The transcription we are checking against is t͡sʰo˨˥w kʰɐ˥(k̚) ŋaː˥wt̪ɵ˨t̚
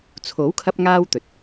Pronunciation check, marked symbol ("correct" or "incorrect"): incorrect